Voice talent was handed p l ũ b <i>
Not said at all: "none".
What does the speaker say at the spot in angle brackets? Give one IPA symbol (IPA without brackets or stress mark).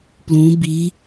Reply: i